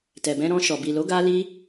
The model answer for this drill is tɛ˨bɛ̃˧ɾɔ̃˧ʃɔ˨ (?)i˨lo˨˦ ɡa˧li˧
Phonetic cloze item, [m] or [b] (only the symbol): b